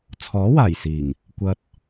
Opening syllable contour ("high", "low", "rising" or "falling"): rising